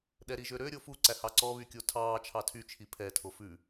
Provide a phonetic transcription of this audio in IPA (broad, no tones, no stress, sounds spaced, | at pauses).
ɗ ɛ ɾ i ʒ ø ɾ ø ɾʲ o f u ǀ æ h ɑ ǀ ɔ β y kʲ o tʰ ɑː t͡ʃʰ ɑ tʰ y t͡ʃʰ i pʰ ɛ tʰ o f ʉ